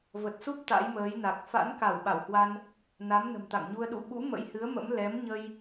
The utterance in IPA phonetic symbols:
v ə˨˩ t̚ s u˦˥ p̚ t̪ a̰˧˥ j m əː˨˦ j n a˨˩ k̚ f a̰˧˥ n k a˧˩ w ɓ a˧˩ w h w a˧ n | n a˨˦ m n ə̤˨˩ m t̪ a̰˧˨ ŋ ɲ u˧ ə̯ ɗ ṵ˧˨ ɓ ṵ˧˥ m ə̰˧˥ j h ɨ˨˦ ə̯ m ə̰˧˥ m l ɛ˨˦ m ɲ ə˧ j

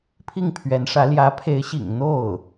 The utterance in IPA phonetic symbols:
pʰ i˥˩ ŋ pʰ ɥ ɛ˧˥ n ʂ ä˧˥ l j ä˧˥ pʰ e˧˥ ɪ̯ ɕ ḭ˨˩ ŋ n̪ o˥˩ ʊ̯

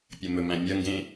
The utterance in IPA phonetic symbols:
pʲ ɐ m ɵ m æ̃ mʲ ɐ ŋ ɡ ẽ

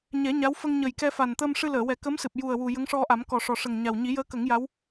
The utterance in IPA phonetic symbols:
ɲ ɛ˨˩˦ ɲ a˧˥ w f ə˧ ŋ ɲ ə˨˩ j k ɛ˧ f a˨˩ n t̪ əː˧ m ʂ ɨ˧ l əː˨˩˨ w ɛ˨˩˦ k ə˧˥ m s ɨ˨˩ p̚ j u˨˩ ə̯ w u˨˩ j ə˧˥ ŋ ʂ ɔ˧ ʔ a˨˩˦ m k ɔ˨˩ ʂ ɔ˨˩ ʂ ə˨˩ ŋ ɲ a˨˩ w ɲ i˨˩˦ j əː˧˥ k ə˨˩˦ ŋ j a˧˥ w

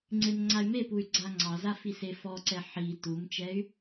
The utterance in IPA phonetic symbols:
ŋ͡ǀ e m ŋ͡ǀ a y̯ m e p u y̯ ɡ͡ǀ a ŋ͡ǀ ɑ z a f i s e f ɔ ǀ ɛ ħ i t u m t͡ʃ ɛ y̯

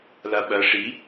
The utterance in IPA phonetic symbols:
l a ɓ ɐ ʂ i

